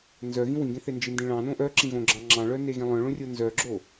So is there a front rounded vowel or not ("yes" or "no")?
yes